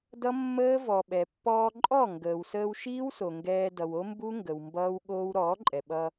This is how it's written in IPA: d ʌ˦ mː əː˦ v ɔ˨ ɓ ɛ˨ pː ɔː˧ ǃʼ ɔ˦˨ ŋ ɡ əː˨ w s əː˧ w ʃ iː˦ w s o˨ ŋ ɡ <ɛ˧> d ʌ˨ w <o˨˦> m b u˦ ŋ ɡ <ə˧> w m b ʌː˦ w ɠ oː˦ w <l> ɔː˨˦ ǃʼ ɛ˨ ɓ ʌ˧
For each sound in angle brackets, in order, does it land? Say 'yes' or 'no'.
no, no, no, no

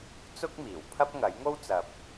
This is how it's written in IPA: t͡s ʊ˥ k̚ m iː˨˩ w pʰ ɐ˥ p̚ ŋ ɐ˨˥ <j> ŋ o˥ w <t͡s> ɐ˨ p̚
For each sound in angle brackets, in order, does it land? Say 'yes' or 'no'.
yes, yes

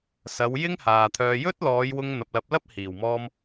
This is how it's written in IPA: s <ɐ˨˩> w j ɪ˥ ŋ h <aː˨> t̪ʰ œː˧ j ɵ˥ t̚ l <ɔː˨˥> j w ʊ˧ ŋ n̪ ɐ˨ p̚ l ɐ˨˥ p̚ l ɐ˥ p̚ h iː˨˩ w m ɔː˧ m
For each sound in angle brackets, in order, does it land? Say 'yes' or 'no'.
no, yes, no

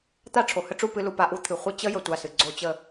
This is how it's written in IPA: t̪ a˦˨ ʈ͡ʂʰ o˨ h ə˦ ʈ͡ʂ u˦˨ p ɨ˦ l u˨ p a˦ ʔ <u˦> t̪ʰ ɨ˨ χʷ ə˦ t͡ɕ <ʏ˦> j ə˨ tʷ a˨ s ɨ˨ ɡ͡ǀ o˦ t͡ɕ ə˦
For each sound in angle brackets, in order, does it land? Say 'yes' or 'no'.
yes, no

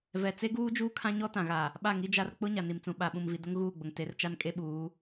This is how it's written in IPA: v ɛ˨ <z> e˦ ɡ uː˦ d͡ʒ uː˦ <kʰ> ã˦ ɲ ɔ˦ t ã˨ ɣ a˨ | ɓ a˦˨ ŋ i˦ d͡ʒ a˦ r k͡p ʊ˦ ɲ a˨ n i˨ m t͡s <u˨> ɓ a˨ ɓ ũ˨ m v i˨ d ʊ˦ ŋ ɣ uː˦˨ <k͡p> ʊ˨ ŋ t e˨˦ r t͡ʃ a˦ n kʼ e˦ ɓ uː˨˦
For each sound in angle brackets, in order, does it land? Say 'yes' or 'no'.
no, yes, no, no

